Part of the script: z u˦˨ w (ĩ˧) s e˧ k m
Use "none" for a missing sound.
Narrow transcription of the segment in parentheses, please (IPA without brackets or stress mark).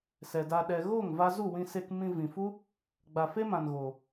ĩ˧